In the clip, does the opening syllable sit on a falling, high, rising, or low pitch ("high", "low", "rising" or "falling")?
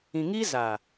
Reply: low